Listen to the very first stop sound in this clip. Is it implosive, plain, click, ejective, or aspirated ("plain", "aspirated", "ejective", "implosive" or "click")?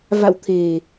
aspirated